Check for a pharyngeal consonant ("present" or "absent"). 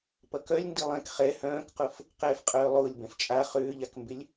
absent